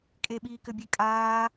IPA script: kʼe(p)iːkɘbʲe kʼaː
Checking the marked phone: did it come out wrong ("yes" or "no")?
yes